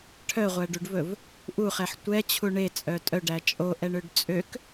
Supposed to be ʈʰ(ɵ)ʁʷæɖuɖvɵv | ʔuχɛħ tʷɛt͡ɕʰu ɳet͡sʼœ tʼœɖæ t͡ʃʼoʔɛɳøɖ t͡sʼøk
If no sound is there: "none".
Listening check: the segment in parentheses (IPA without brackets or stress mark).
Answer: œ